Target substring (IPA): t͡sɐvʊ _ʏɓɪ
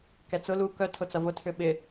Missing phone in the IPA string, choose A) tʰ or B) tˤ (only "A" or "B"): A